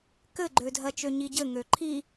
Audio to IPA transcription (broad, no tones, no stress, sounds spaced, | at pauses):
k ɘ ɡ͡ǃ ø dʱ ɜ t͡ʃ ø ɲ i ɟ ɘ ŋ ø ǃʰ i